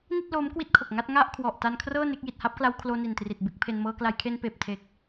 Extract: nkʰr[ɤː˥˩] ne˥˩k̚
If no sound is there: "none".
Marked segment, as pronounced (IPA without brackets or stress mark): ɤː˥˩